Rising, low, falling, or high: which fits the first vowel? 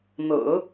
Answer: low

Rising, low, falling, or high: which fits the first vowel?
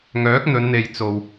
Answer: rising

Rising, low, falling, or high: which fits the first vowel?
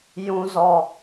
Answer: high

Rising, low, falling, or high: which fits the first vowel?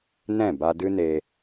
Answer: falling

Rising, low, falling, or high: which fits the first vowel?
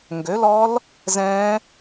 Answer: rising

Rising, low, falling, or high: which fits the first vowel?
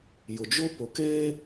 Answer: low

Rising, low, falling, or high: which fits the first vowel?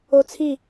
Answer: high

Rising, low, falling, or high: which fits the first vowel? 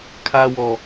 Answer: high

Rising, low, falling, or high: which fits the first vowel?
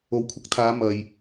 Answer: rising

